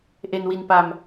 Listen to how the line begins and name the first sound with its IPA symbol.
ʔ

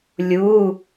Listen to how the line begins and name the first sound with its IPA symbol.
lʲ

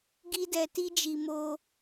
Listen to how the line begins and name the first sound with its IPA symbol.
ɡ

